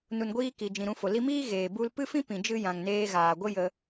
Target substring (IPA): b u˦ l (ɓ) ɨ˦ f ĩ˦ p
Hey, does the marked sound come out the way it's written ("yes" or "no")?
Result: no